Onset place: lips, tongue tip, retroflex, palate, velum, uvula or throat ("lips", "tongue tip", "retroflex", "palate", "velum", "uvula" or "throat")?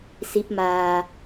tongue tip